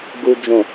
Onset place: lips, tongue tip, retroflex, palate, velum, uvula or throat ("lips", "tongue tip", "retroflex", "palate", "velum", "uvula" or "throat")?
velum